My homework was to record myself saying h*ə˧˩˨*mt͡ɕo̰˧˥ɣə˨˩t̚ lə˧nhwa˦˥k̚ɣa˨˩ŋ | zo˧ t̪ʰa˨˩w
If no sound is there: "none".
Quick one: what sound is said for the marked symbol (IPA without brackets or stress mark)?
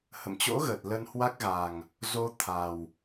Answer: ə̰˧˨